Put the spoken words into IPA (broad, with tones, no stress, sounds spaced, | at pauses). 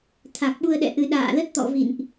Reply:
t̪ʰ a˨˩ k̚ ɓ u˧ ə̯ ɗ ɛ̰˧˨ ʔ ɨ˧ ɗ a̰ː˧˨ l ə˦˥ t̚ t̪ ɔ̰˧˨ v ḭ˧˨ n ʔ